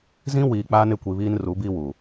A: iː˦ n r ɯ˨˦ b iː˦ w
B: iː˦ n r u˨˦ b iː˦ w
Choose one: B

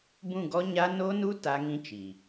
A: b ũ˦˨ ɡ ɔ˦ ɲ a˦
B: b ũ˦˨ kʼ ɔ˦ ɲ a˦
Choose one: A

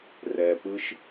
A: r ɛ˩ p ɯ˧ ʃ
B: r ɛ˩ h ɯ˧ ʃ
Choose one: A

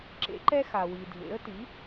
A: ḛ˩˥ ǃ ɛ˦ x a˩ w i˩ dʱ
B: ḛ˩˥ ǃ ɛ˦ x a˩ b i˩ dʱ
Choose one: A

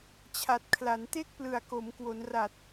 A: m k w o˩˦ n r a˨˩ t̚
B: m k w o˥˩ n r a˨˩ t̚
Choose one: A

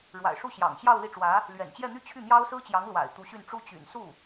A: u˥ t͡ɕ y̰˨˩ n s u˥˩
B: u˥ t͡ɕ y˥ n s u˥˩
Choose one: A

